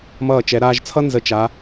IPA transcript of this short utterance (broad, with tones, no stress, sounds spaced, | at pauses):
m ʌː˧˩ t͡ʃ ɛ˩˧ ɾ aː˧ ʒ t͡sʰ ʌ˥ n z ə˧˩ t͡ʃ a˩˧